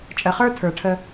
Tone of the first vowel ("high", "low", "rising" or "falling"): low